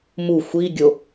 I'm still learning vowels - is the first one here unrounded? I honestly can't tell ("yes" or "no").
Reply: no